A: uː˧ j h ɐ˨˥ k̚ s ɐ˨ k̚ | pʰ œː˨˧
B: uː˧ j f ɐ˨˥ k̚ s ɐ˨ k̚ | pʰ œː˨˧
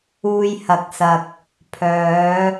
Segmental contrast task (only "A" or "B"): A